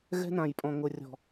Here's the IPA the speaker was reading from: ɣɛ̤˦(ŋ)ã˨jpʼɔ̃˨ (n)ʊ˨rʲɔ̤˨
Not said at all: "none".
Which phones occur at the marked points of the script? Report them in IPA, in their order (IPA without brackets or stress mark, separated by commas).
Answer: n, ŋ